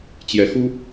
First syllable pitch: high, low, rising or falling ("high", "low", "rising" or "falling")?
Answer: rising